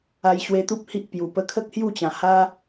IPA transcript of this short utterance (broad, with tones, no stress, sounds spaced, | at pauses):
a˧ j ɕ w e˧ t̪ u˦ p̚ h i˦ ʔ p j u˨˩ p ə˧ kʰ ə˦ k̚ h j u˥˧ t͡ɕ ã˨˩ h a˦